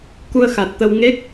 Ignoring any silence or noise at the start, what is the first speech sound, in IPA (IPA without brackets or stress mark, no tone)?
k